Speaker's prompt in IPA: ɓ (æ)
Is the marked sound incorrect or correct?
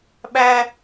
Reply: correct